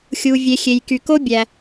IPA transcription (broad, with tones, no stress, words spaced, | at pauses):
xʲu˩vʲe˩xʲe˩j ky˩ko˥ bʲæ˩